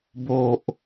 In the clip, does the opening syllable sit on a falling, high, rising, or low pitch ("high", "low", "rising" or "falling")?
low